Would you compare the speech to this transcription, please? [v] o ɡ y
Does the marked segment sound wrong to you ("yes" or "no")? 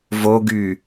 no